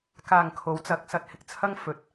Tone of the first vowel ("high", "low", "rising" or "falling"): low